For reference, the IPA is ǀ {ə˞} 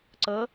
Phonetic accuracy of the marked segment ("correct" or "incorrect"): incorrect